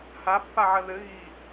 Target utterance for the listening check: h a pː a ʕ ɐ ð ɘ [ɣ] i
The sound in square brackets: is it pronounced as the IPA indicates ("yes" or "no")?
yes